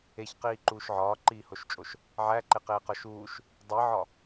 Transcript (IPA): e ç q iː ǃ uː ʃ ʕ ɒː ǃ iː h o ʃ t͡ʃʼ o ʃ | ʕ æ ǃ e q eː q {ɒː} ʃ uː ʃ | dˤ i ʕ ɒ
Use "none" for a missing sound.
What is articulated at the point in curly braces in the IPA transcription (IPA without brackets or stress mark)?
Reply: ɒ